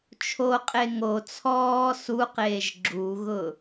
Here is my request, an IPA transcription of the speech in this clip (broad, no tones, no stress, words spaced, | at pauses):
t͡ʃʰoqʼe ŋo t͡sʰɔː suqeːʒ ɡ͡ǁuɣʊ